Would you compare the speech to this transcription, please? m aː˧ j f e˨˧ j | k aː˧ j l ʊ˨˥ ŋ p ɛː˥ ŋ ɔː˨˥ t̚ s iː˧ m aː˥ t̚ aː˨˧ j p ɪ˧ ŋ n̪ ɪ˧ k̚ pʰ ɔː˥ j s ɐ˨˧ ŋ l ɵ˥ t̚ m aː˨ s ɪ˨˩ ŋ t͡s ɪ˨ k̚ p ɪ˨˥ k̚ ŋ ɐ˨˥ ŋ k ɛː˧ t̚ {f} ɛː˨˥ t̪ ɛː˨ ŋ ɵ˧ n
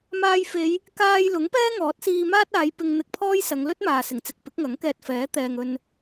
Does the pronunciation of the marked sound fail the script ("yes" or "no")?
no